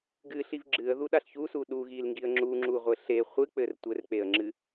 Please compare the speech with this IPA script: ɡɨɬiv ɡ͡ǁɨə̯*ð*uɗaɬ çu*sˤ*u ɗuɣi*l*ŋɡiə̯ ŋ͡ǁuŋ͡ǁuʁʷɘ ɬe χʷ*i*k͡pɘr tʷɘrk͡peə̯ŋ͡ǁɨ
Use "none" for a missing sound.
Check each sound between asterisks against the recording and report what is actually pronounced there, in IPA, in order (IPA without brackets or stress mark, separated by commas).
ð, s, l, ɨ